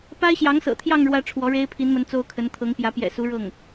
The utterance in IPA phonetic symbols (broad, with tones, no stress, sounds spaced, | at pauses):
p a˥ ɪ̯ ɕ j ɑ˧˥ ŋ s ɤ̰˨˩ t̪ʰ j ɑ˥˧ ŋ ɻ w ä˥˩ ʈ͡ʂʰ w ɔ˧˥ ɻ e˥ ɪ̯ pʰ i˧˥ n m ə˧˥ n t͡s o˥ ʊ̯ kʰ ə˧˥ n t̪ʰ ɤ˧˥ ŋ p j ä˧˥ p j ɛ̰˨˩ s u˧˥ ɻ ɤ˥˩ ŋ